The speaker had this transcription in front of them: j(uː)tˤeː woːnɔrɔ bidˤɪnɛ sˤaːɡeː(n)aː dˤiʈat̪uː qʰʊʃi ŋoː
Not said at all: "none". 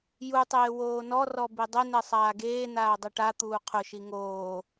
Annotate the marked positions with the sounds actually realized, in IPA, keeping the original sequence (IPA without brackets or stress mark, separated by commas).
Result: u, n